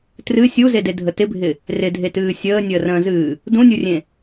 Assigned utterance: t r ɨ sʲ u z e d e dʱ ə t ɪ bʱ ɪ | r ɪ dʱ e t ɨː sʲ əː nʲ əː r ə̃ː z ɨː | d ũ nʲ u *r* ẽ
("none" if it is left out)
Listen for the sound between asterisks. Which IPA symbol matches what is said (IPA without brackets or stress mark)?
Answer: rʲ